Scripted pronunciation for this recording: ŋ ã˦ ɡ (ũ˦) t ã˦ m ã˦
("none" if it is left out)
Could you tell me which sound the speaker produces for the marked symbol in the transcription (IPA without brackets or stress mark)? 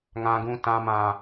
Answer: ũ˦